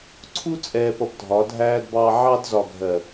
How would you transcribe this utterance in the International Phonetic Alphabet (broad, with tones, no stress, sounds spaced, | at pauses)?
ǀʰ u˦ t͡sʼ ɛː˨ p ʌ˨ b dʱ ɒ˨˦ dʱ æː˦ d b ɑː˦ ʕ ɑ˦ d z ɒ˨ ɡʱ ɜ˨